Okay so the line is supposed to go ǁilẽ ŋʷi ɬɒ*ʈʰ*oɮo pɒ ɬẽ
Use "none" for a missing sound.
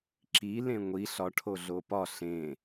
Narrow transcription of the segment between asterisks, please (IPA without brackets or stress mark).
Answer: ʈʰ